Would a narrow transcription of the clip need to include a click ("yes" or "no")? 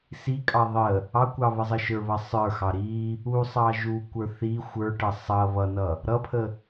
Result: no